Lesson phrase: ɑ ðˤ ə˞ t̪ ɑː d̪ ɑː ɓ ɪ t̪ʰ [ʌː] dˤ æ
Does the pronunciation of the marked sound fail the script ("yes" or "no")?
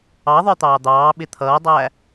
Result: no